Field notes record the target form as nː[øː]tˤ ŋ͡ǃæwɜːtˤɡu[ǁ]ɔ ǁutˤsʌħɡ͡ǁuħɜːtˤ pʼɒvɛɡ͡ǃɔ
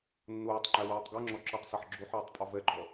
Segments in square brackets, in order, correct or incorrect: incorrect, incorrect

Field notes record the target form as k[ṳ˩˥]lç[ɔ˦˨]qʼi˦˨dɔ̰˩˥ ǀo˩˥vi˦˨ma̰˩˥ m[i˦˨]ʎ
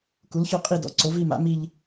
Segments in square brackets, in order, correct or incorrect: incorrect, correct, correct

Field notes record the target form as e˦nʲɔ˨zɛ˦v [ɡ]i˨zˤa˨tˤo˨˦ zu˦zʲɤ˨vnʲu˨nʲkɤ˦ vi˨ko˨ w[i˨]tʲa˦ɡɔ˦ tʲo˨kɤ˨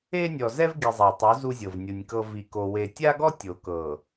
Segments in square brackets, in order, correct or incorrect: correct, incorrect

